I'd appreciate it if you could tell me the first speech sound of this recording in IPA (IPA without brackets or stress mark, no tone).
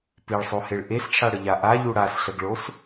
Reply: p